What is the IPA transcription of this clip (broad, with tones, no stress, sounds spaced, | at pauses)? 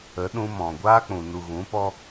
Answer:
ə˨˦ ɗ ũ˧ m ɔ̃˨ ɡʷ aː˧ k͡p ũ˨ n u˨ ɣ ũ˨˦ p ɔ˦